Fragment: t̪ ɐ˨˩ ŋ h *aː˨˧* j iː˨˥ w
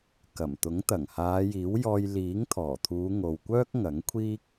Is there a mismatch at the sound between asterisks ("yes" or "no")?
no